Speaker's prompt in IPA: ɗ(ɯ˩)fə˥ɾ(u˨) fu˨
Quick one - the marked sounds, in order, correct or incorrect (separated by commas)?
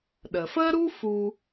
incorrect, incorrect